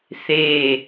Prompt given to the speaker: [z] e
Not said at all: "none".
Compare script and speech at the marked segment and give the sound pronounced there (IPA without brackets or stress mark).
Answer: θ